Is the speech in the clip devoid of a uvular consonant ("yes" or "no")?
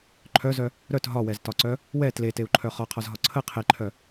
no